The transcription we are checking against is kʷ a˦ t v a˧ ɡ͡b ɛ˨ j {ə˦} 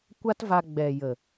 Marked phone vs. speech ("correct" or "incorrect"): incorrect